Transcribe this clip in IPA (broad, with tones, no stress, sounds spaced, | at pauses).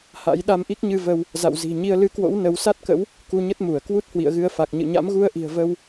h a̰˧˥ j ɗ a˧ m ʔ i˦˥ k̚ ɲ ɨ˧ v ə˧ w | z a̰˧˨ w z i̤˨˩ ɲ i˧ ə̯ l ɨ˨˦ k w o̰˧˥ w n ə˨˦ w s a˦˥ t̚ k ə̰˧˥ w | k u˧ ɲ ə˦˥ t̚ m u˧˩ ə̯ k w u˦˥ t̚ h w ḭ˧˨ ə̯ ɣ ɨ˧ ə̯ f a˨˩ k̚ ɲ ɨ̰˧˨ ɲ a̰˧˥ m ɣ u˧ ə̯ ʔ i̤˨˩ ə̯ v ə˧ w